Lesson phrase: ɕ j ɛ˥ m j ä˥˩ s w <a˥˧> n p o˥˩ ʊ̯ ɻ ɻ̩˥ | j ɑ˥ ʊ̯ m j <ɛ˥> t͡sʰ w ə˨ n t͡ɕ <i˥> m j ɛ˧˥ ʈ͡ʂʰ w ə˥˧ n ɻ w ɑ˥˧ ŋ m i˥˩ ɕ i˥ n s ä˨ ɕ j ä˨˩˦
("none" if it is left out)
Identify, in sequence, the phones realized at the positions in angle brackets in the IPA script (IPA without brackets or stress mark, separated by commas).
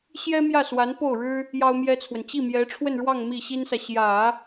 a˧˥, ɛ˥, i˥˩